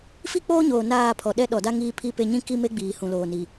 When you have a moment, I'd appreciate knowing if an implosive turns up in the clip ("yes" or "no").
yes